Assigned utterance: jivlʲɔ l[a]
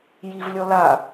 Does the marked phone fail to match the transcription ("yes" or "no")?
no